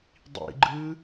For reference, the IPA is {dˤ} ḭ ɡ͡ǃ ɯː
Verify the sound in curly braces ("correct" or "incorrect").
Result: correct